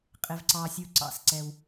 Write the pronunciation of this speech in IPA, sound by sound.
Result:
qʼ ɪ˩ v ǀ ɑ˩ sʲ u˩ ǀ ɑ̰˩˧ s ǀ ɛ˩ w

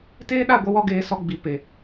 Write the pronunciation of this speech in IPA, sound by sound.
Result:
t eː˦ ɗ a˦˨ ɡʷ ə˧ w ɔ˧ ɡ eː˨ s ɔ˧ ɡ͡b i˨ p e˨

